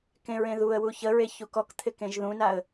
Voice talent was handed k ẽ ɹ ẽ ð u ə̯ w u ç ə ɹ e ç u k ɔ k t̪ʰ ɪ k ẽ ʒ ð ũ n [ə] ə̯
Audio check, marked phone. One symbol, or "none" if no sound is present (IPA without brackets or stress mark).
a